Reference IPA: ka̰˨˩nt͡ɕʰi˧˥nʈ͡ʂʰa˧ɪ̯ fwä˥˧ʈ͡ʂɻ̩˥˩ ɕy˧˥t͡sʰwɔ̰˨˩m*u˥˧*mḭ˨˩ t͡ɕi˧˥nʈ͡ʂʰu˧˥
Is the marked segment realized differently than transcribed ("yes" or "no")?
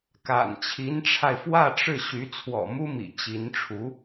yes